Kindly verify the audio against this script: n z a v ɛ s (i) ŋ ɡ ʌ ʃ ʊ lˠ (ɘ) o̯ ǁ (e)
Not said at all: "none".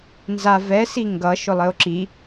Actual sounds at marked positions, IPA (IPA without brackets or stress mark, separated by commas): i, ɘ, i